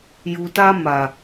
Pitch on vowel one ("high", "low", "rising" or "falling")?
low